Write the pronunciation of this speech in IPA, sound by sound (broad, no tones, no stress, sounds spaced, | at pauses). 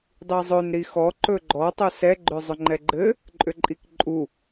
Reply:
dˤ i zˤ ɵ n ɾ i x ɔ ǃ ɵ ɡ͡ǃ ɔ tˤ ɵ s ɛ ɡ͡ǃ ʏ zˤ ʏ ŋ͡ǃ ɛ ɡ͡ǃ ɘ | ǃʼ ʏ ǃʼ i k ǃʼ u